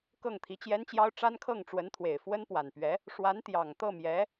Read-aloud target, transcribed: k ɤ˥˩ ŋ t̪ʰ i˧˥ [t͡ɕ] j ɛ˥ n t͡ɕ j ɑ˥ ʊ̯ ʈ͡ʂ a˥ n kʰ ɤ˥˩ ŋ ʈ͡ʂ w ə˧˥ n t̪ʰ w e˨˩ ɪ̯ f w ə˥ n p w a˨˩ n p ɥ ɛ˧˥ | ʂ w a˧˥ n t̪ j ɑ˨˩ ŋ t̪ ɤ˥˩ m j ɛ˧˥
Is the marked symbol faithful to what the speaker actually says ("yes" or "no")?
yes